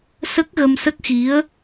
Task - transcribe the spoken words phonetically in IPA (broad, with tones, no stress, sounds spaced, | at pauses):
s ə˦˥ k̚ ɣ ə˧ m s ə˦˥ k̚ x i˧˥ ə̯